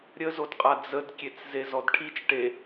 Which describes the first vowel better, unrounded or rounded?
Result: unrounded